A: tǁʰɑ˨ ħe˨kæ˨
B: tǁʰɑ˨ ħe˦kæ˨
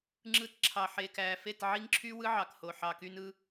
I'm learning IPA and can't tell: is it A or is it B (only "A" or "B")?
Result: A